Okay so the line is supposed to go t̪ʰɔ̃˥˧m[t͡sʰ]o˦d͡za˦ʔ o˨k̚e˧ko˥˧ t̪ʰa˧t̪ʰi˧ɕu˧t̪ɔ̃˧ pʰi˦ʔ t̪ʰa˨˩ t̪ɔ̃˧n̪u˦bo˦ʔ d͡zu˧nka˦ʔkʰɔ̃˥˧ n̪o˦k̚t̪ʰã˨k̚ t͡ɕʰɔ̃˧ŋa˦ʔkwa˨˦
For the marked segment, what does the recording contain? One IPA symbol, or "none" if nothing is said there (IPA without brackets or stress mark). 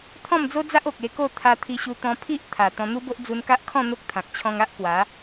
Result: d͡z